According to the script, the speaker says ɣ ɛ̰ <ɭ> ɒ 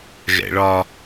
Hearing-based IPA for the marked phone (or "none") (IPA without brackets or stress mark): ɭ